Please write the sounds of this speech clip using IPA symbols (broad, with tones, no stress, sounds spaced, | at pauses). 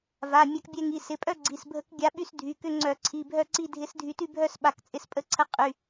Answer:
v a˩˧˩ mʲ a˧ k bʲ ɛ˧ ŋ i˩˧˩ s ɪ˩˧˩ pʼ œ˥˧ ɡ͡ǀ i˩˧˩ s bʱ ə˧˥ k ɡʲ a˧˥ ɓ y˥˧ s dʱ y˩˧˩ k ʏ˥˧ ŋ͡ǀ œ˧˩˧ ǀʰ i˩˧˩ bʱ œ˥˧ ǀ i˥˧ dʱ ɪ˧˥ s dʱ y˧ t y˥˧ bʱ œ˥˧ s ɓ a˧˩˧ k t͡sʼ ɪ˧ s pʼ ə˧˥ ǀʰ ə˧˥ qʼ y˩˧˩